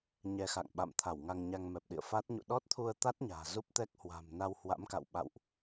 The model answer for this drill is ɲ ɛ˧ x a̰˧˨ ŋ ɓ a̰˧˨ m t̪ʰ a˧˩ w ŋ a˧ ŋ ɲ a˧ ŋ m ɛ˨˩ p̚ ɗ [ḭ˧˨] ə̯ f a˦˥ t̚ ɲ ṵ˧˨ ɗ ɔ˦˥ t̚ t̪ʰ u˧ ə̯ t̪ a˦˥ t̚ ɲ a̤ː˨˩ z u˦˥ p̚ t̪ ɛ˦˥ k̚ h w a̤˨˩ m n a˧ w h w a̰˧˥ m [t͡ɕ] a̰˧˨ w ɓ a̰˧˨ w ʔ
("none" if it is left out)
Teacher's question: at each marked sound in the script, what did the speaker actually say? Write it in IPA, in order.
ḭ˧˨, k

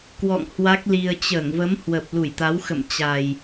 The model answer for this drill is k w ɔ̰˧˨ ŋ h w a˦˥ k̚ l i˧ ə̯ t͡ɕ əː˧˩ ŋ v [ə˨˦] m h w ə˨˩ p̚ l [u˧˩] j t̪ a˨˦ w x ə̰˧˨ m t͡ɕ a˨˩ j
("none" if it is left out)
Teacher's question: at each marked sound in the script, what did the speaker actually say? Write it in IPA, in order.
ə˨˦, u˧˩

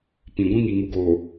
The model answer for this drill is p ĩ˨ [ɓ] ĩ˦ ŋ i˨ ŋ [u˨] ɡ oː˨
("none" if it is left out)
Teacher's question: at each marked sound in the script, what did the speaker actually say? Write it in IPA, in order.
ɡʷ, u˨

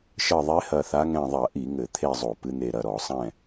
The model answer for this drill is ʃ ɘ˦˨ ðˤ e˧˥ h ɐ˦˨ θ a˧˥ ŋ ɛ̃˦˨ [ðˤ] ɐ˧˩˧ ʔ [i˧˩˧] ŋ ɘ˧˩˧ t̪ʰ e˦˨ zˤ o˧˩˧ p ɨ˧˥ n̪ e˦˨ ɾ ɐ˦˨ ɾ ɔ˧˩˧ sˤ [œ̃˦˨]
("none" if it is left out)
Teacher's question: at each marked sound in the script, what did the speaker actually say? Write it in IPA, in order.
ðˤ, i˧˩˧, ɛ̃˦˨

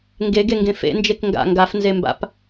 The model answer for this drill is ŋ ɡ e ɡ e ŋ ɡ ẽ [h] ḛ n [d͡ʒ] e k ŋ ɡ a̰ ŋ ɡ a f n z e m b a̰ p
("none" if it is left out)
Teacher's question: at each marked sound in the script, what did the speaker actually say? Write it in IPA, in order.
f, d͡ʒ

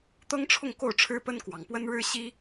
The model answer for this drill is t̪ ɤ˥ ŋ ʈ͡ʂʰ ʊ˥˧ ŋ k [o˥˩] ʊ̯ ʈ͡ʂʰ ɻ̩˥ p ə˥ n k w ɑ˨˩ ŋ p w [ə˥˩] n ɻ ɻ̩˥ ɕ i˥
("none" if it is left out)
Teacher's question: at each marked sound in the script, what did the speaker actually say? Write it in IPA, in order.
o˥˩, ə˥

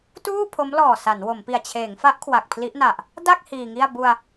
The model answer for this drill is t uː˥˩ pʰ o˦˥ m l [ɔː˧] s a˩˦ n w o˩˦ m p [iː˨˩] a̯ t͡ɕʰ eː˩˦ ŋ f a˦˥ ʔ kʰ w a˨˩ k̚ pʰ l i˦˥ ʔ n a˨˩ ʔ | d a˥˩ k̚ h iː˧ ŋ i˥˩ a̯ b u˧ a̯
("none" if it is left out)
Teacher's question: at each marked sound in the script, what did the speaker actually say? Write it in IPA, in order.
ɔː˨˩, i˨˩

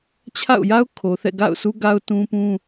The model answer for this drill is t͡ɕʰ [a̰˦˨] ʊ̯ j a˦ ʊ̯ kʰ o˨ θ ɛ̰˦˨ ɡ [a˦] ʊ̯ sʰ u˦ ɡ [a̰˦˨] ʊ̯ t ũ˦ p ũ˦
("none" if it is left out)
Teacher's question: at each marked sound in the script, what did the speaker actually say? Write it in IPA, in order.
a̰˦˨, a̰˦˨, a˦

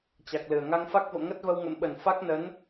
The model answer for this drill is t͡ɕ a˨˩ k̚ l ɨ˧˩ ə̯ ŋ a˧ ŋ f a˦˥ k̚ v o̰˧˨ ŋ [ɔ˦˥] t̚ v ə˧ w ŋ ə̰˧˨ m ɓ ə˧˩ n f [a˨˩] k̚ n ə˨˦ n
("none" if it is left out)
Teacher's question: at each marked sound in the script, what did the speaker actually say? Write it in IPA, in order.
ə˦˥, a˦˥

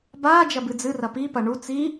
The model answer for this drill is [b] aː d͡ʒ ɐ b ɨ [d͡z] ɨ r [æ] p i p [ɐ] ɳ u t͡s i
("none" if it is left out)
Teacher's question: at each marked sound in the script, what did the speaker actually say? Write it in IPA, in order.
b, d͡z, ɐ, ɐ

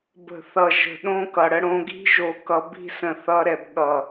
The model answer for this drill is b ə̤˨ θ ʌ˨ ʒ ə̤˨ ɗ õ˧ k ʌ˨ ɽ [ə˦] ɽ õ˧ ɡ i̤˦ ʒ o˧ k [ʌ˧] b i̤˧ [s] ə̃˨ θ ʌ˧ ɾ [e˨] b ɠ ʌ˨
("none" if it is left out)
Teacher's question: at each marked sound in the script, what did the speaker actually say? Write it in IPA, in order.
ə˦, ʌ˧, s, ɛ˨

